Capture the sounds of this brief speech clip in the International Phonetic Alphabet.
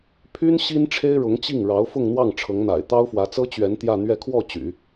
pʰ y˥ n ɕ i˥ n ʈ͡ʂʰ e˥ ɪ̯ ɻ ʊ˧˥ ŋ t͡ɕ i˥˩ ŋ ɻ ɑ˧˥ ʊ̯ f ʊ˥˧ ŋ n̪ w ɑ˥˩ ŋ ʈ͡ʂʰ ɤ˧˥ ŋ n̪ a̰˨˩ ɪ̯ t̪ ɑ˥ ʊ̯ f w ä˧˥ t͡s ɤ˥ t͡ɕ ɥ ɛ˧˥ n t̪ j ä˥˧ n̪ ɥ ɛ˥˧ kʰ w ɔ˥˩ t͡ɕ y̰˨˩˦

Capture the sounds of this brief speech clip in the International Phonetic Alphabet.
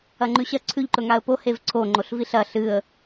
ɐ ŋ͡ǃ ʉ ɕ ɐ ǀʰ ʉ ʎ ǃ ɵ ŋ a ə̯ p o h e v ǀʰ o ŋ͡ǃ o ɬ v i ɬ ɐ ɬ ɨ ə̯

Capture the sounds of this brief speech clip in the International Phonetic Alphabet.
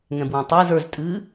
ŋ ɛ̃ b w ã tˤ ɨː z ə˞ z tʼ ɨː

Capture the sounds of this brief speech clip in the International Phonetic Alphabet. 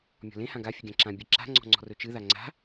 mʲ ɔ̤ l ẽ h ã ɡ a fʲ ɨ ɡʲ ã ǁ ã bʲ ɨ ǁ a̤ ŋ͡ǀ ɔ̤ ŋ͡ǀ ɔ̤ r ɵ t͡ʃ ɨ ð a ŋ͡ǀ a̤

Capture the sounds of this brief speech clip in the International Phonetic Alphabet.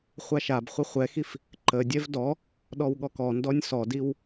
χʷ a ʃ a b χʷ ə χʷ ɛ x i f | ǃ ə dʲ ɛ v d ɔ | ɗ ɔ w ɠ ɔ k ɔ n d ɔ nʲ s ɔ d i w

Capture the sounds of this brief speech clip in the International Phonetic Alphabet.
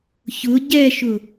ç ʊ ɟ ɛ ʃ ʊ

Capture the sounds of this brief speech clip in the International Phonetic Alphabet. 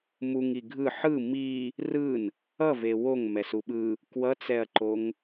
m u ŋ i ɡʱ ɯ ħ ɯ m i | r ɯ n | ʌ v e w o ŋ m ɛ s u ɓ ɯ | k w ʌ t͡s ɛ ɐ̯ ǃ o ŋ

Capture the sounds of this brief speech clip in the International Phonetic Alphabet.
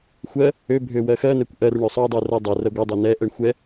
xʷ ɜ | ø bʱ ø w ɜ x ɜ n ɛ kʷ ʔ ɜ r ɳ ø sˤ o dˤ u r ɜ dˤ ɛ r ɜ ɡʷ ɜ dˤ ø n ɛ ʔ ɛ ɳ xʷ ɛ

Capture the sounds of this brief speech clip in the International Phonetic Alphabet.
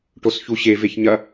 ʈ o s ç u ɕ e v e ç ɲ ɐ

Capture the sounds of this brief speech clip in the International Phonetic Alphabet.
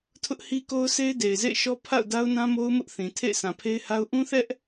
tʰ ʊ˦ ʔ h i˦ k o˦ ʊ̯ s e˦ ɪ̯ d e˨ ɪ̯ z ḛ˦˨ ɪ̯ ʃ ɔ˦ pʰ a̰˦˨ ʊ̯ d a˦ ʊ̯ n ã˦ m o˦ ʊ̯ m ʊ˦ ʔ θ ĩ˨ tʰ ḛ˦˨ ɪ̯ sʰ ã˨ pʰ e˦ ɪ̯ h a˦ ʊ̯ ʔ ũ˦ θ ɛ˦ ʔ

